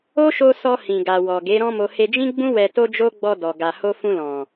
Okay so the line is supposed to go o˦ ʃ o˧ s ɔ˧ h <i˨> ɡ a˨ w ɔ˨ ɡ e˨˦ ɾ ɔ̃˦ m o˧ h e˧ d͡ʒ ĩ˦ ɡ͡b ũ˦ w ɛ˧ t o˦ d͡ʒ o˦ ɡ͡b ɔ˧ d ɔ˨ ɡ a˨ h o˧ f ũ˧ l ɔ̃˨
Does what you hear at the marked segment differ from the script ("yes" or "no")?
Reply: yes